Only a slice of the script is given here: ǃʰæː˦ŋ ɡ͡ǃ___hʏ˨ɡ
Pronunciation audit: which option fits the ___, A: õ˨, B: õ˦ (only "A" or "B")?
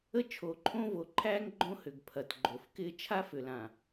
B